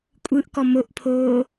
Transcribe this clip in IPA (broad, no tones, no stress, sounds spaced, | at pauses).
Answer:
kʷʼ ɯ ʔ k ɔ m o ʔ pʰ oː